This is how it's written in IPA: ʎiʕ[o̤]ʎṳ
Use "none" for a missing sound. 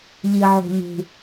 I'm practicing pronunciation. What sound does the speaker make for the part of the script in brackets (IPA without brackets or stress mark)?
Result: o̤